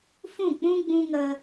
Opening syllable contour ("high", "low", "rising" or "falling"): falling